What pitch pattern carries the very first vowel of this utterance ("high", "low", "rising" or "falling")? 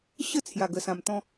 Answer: falling